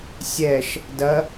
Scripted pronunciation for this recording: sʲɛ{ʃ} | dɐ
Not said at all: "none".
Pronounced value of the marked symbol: ʃ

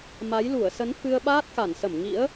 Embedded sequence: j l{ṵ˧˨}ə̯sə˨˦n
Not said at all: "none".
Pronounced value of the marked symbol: u˧˩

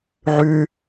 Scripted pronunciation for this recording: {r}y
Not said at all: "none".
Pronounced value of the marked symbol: ʕ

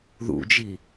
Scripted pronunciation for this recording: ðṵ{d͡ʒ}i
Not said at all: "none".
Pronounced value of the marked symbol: d͡ʒ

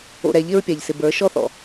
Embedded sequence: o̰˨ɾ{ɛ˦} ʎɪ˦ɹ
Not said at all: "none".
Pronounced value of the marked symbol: ɛ˨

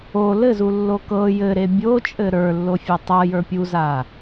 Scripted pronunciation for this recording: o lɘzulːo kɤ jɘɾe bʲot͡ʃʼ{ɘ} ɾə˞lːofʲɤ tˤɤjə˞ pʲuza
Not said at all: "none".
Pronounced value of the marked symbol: ɘ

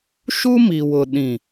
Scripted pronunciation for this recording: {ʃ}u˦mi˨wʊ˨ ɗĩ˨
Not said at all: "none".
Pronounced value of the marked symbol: ʃ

